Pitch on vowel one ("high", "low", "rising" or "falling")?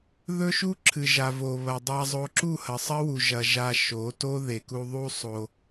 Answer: high